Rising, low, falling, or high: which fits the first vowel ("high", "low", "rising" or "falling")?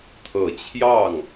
low